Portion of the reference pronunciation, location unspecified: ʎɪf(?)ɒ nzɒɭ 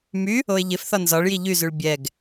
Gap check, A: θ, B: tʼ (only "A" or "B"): A